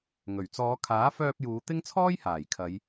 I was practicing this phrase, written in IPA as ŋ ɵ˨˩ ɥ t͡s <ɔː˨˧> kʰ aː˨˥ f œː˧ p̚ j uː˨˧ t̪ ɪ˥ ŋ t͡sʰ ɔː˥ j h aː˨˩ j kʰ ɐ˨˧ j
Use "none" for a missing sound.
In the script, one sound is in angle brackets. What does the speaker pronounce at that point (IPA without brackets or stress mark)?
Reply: ɔː˨˧